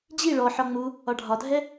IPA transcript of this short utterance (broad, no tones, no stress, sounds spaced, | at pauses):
d͡ʑ i ɭ ɔ ħ ɒ ŋ͡m u | ɒ ɖʱ ɒ dʱ ɛ